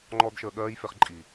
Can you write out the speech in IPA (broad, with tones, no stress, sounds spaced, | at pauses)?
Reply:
ŋ͡ǃ ɔː˦ d ʃ əː˧ ɠ ɜː˦ j f e˧ χ ǃʼ i˨